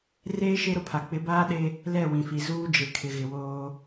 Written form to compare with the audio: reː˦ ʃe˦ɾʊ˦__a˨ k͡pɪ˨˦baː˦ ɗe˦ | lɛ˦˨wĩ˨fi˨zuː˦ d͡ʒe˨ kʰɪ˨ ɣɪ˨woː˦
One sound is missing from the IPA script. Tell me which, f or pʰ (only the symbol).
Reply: pʰ